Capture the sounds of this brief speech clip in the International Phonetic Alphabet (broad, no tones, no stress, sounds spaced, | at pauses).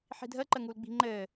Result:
ħ i̤ dʱ əː ǃ ə ŋ u l ɡ͡b i̤ ŋ͡ǃ ɘː